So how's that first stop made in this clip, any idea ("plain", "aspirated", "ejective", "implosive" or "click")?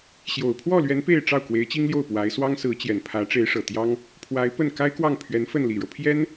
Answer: aspirated